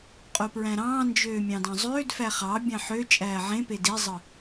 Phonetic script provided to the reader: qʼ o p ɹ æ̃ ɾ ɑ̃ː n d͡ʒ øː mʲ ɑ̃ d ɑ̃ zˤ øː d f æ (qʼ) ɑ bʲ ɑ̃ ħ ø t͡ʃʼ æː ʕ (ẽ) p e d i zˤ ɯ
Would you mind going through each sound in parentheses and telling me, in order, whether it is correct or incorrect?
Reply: incorrect, correct

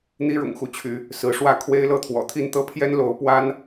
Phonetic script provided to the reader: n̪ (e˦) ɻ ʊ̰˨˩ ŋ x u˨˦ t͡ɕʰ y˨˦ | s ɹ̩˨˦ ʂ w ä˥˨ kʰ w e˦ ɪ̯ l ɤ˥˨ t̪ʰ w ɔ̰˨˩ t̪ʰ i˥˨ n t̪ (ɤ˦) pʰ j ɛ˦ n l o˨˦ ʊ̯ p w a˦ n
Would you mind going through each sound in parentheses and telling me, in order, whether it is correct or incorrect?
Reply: incorrect, correct

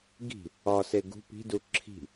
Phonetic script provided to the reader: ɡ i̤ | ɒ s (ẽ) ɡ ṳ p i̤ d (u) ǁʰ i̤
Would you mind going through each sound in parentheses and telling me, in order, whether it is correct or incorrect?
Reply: incorrect, correct

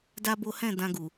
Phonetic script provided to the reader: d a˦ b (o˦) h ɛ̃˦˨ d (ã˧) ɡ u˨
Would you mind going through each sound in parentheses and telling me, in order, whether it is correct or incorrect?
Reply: correct, correct

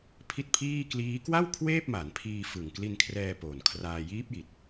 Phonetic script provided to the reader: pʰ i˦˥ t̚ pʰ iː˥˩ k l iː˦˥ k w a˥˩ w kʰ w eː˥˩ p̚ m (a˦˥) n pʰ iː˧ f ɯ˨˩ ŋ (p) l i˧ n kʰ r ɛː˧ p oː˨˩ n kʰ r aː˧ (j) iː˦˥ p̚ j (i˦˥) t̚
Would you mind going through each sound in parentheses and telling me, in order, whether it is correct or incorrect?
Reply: incorrect, incorrect, correct, incorrect

